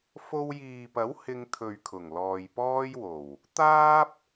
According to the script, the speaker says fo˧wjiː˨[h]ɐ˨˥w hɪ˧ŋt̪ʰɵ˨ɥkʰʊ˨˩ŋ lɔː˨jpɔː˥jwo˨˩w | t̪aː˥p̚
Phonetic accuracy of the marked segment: incorrect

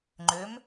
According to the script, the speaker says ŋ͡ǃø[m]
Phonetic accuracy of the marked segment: correct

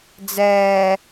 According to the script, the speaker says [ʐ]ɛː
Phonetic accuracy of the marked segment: incorrect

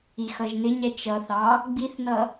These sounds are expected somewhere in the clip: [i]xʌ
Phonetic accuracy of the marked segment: correct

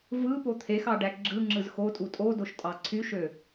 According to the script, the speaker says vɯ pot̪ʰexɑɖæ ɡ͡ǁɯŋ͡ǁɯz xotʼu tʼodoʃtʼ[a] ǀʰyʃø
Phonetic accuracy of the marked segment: incorrect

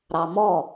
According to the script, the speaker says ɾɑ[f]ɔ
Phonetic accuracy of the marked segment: incorrect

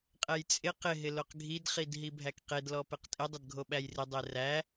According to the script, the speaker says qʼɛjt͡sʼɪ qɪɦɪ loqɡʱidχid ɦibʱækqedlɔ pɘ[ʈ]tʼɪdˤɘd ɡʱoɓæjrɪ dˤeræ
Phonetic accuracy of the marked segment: incorrect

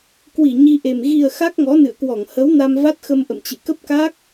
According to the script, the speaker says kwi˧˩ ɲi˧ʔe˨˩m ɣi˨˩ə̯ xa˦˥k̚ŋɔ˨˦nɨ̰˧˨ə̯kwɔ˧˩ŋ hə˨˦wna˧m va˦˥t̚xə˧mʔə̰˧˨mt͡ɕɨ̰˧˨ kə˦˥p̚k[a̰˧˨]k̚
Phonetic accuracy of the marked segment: incorrect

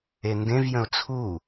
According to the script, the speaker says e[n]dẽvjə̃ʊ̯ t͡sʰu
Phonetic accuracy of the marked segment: correct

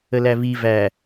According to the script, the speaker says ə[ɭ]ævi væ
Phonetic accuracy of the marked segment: incorrect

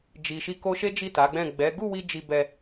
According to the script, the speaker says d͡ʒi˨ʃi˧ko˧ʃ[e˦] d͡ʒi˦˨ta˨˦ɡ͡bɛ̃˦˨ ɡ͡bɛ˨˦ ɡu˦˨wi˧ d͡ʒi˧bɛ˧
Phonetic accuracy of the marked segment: correct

